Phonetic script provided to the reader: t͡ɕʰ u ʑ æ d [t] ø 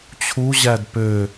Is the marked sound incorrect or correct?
incorrect